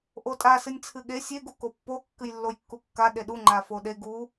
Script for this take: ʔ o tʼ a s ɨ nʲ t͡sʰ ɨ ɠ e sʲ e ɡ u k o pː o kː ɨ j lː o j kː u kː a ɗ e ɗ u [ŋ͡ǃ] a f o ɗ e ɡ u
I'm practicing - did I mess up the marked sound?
no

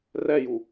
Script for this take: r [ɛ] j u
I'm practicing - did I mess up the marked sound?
no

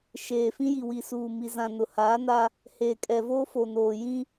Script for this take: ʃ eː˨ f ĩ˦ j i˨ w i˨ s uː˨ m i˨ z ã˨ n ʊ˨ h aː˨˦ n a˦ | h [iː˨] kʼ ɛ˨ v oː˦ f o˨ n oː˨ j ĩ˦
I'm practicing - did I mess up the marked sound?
yes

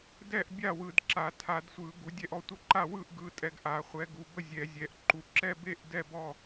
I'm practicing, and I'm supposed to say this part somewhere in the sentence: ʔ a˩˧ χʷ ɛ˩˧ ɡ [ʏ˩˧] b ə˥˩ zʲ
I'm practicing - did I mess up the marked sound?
yes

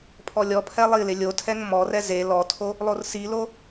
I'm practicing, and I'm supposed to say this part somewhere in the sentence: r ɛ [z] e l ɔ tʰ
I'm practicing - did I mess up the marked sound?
no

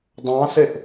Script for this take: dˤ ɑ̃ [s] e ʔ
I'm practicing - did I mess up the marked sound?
no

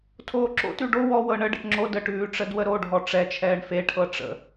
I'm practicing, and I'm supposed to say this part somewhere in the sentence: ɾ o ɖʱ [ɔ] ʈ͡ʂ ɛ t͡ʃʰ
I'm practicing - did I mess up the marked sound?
no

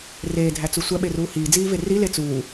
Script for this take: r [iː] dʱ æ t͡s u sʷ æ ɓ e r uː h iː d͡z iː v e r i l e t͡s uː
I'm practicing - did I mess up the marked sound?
yes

